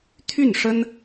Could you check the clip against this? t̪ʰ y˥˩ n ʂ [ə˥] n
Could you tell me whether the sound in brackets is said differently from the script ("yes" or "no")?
no